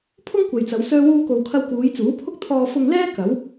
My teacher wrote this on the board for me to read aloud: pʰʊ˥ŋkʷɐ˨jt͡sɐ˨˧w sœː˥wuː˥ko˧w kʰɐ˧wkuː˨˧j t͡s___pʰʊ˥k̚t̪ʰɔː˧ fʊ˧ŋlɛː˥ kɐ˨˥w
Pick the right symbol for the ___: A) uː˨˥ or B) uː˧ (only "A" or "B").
A